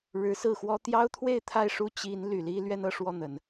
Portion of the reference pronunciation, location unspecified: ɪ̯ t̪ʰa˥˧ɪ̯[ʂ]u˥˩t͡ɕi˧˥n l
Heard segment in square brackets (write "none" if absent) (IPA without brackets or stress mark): ʂ